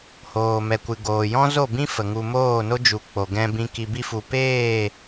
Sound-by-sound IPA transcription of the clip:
h oː˨ m ɛ˨ kʷ ɨ˨ ɡ oː˨ j ɔ̃˦ z o˦˨ b ĩ˦ f ə˨ ŋ u˧ m oː˦˨ n o˦ d͡ʒ u˨ k͡p o˨ ɡ ɛ̃˧ b ĩ˧ k i˨ b i˧ f u˨ p eː˦˨

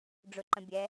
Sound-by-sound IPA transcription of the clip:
ɖ͡ʐ ʊ ǃ ə̃ bʲ ɛ

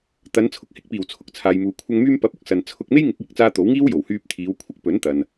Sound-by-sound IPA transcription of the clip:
t̪ ɐ˨˧ n t͡sʰ ʊ˨ k̚ h ɪ˨˥ k̚ p iː˨˩ w t͡sʰ ʊ˨ k̚ t͡sʰ aː˨ j m uː˨ kʷʰ ɐ˧ ŋ m yː˧ m p ɐ˨˥ p̚ ʊ˥ k̚ s ɐ˨ n t͡sʰ ʊ˧ k̚ m e˥ j ŋ ɪ˨˥ k̚ j ɪ˨˥ k̚ t͡s aː˧ t̪ o˨˥ w ŋ iː˥ w j o˨˩ w h yː˧ p̚ t̪ʰ iː˨˧ w kʷʰ ɪ˥ k̚ p ɵ˨˥ n t̪ ɐ˨ n

